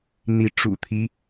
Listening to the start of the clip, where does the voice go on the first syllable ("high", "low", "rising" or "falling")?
rising